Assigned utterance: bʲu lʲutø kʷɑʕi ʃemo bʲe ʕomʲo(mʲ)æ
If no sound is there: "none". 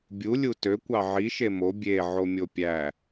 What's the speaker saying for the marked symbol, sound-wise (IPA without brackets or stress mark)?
pʲ